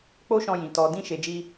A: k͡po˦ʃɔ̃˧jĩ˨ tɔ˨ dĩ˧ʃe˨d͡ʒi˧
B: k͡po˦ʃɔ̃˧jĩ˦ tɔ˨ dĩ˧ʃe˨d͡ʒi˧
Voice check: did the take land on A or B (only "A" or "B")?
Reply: A